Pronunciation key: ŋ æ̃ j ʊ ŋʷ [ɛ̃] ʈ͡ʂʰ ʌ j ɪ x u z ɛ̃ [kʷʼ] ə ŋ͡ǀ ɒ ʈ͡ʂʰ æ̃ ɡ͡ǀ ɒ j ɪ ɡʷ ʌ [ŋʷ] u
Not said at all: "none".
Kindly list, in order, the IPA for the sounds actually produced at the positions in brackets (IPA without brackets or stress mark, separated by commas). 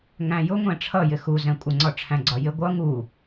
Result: ɛ̃, kʷʼ, ŋ